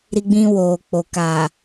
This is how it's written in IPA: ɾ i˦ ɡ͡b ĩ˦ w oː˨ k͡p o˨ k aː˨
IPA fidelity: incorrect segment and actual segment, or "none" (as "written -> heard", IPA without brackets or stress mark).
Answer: none